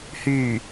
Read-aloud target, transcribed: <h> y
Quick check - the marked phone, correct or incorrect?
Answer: correct